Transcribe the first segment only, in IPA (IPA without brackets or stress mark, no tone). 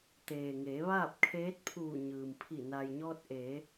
t̪